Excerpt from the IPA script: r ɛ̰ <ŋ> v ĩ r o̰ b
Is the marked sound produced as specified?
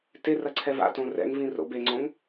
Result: yes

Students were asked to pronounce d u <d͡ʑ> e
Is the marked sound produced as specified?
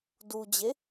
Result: yes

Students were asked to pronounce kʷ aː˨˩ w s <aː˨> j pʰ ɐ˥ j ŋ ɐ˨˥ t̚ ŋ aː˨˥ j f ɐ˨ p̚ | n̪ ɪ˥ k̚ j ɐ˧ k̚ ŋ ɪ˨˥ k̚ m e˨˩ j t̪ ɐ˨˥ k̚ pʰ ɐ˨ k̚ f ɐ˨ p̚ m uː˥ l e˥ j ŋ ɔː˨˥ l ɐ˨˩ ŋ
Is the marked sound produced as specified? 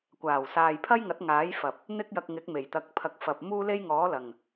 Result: yes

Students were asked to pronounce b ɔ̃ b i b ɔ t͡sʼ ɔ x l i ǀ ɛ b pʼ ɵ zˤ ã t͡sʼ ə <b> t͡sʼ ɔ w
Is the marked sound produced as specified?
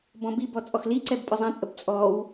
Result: yes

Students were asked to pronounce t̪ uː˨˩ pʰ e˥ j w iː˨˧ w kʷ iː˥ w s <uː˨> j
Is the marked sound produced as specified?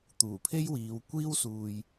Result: yes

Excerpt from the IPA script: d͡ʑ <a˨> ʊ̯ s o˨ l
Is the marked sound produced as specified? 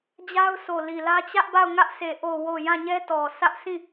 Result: no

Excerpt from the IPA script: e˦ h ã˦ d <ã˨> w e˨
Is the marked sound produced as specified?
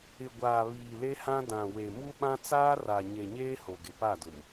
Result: yes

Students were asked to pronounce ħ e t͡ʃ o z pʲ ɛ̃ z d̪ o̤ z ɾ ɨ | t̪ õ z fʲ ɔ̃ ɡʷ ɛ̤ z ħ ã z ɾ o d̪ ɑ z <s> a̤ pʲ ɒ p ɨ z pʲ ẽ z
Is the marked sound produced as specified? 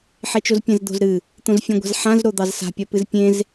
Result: yes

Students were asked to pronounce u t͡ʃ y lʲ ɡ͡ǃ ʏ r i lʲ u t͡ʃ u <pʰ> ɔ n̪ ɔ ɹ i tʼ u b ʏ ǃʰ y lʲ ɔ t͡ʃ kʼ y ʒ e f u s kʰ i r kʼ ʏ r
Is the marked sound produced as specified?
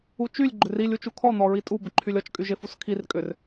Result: no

